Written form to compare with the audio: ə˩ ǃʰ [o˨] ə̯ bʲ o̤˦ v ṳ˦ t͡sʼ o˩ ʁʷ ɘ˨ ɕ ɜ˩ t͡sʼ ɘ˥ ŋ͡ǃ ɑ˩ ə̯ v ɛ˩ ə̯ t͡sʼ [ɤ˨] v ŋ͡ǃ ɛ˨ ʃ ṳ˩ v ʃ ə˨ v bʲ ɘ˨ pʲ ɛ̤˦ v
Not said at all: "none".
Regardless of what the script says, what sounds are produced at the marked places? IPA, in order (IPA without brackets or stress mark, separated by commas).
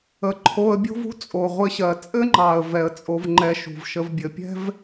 o˨, o˨